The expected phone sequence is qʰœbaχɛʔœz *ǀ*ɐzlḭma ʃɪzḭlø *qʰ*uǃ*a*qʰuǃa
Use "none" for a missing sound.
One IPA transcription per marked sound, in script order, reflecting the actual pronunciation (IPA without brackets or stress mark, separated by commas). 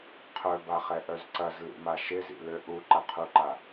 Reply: ǀ, ʔ, ɐ